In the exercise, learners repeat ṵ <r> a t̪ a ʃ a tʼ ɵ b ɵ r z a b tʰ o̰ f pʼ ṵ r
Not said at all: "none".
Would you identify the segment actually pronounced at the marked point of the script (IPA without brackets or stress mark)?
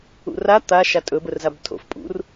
r